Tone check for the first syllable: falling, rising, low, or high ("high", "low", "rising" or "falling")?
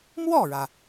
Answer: falling